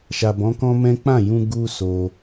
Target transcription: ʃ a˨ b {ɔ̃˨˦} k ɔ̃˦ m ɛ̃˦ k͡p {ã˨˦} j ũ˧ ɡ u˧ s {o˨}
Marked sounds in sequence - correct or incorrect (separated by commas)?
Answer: correct, incorrect, incorrect